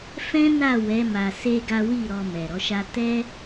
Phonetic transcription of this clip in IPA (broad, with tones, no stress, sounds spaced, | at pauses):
f ɛ̃˦ n a˦˨ w ɛ˨˦ m a˧ s e˦ ɡ a˦ w i˦˨ ɾ ɔ˧ m ɛ˨ ɾ ɔ˨˦ ʃ a˦ t ɛ˦